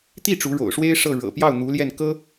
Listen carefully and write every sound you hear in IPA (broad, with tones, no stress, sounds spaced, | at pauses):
t̪ i˥˩ ʈ͡ʂ u˧˥ ɻ o̰˨˩ ʊ̯ ʂ w e˥ ɪ̯ ʂ ɤ˥˩ ɻ ɤ̰˨˩ p j ɑ˥˩ ʊ̯ n̪ u˧˥ l j ɛ˥˩ n k ɤ˥